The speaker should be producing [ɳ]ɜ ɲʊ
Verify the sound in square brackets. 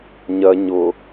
incorrect: ɲ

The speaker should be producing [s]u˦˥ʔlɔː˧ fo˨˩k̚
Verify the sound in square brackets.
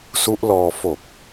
correct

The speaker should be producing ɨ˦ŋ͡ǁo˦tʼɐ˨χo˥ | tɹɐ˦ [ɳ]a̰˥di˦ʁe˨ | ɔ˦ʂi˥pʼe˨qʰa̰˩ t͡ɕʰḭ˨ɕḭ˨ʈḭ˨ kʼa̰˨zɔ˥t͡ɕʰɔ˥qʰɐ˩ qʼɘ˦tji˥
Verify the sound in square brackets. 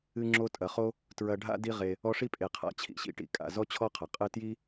incorrect: ɖʱ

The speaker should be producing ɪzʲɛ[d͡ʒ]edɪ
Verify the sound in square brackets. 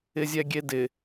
incorrect: ɡʲ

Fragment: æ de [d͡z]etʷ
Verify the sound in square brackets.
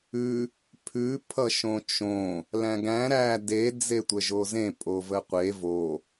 correct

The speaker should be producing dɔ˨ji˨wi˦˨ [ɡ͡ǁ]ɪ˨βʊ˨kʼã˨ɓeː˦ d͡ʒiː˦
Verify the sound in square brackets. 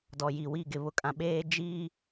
incorrect: ɡ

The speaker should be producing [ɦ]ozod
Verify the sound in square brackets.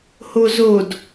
incorrect: h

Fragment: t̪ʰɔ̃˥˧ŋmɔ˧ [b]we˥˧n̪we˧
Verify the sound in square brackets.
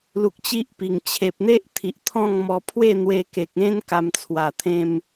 incorrect: pʰ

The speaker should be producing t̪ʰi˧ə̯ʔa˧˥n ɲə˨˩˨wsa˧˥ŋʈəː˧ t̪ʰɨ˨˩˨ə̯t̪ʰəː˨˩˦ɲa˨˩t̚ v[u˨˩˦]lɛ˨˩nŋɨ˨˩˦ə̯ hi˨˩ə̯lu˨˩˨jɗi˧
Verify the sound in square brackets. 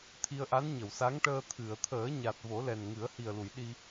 incorrect: o˨˩˦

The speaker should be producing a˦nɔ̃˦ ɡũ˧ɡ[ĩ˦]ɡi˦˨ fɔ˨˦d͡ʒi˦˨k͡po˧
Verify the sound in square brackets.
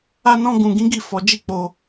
correct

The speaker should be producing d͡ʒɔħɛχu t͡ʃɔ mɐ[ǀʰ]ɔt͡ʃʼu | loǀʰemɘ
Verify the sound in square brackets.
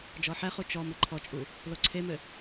incorrect: ǃʰ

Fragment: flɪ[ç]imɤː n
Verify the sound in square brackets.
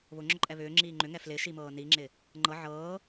incorrect: ʃ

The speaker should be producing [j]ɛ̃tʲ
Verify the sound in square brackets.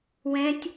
incorrect: w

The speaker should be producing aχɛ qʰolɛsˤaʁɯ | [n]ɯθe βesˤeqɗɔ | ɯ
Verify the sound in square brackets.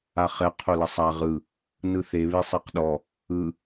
correct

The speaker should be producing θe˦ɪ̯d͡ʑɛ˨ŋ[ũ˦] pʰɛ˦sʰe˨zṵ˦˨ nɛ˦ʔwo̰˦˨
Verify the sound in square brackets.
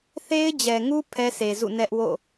incorrect: u˦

